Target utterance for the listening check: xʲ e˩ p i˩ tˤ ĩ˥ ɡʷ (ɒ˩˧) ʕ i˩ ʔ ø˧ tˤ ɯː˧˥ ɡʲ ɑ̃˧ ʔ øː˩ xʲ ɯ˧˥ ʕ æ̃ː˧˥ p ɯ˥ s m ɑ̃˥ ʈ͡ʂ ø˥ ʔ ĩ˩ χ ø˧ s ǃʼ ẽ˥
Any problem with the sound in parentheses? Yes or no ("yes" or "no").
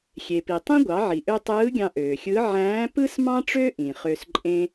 yes